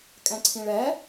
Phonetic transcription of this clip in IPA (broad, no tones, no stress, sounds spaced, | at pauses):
kʼ ɛ̃ ǀʰ ĩ ɭ ɛ